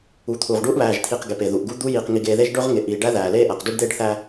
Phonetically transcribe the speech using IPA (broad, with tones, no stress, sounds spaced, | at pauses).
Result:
u˨ t̪ʰ uː˨ ʁ ɖ uː˦ ʔ β æː˨ ʒ t̪ʰ iː˨ q ɡ e˨ p e˨ ð u˨ ʔ ɡ u˦ d̪ u˦ j iː˨ q ŋ i˨ ɡ eː˨ ð e˦ ʒ ɖ ɵ˦ ʁ ŋ e˨ ʔ iː˨ ɖ æ˦ ð æː˨ l eː˦ ʔ æ˨ q d u˦ ɖ d̪ eː˦˨ ɖ θ æː˨